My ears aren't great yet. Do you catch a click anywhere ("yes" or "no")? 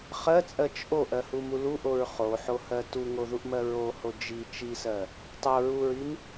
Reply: no